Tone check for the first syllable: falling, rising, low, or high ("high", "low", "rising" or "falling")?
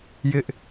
high